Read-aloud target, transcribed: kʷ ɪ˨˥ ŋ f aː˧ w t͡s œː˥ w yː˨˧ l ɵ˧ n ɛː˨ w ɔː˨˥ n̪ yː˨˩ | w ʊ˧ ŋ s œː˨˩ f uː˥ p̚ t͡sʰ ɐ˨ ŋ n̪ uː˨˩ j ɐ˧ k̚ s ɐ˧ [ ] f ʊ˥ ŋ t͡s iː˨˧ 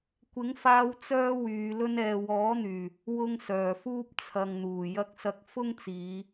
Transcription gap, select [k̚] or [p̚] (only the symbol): k̚